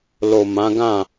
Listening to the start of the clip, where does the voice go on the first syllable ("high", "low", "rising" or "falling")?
low